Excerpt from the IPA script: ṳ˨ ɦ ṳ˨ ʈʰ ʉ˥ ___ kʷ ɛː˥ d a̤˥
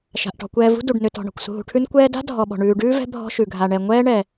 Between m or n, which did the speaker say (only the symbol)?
n